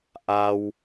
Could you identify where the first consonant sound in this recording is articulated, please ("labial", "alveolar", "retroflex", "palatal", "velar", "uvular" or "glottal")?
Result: glottal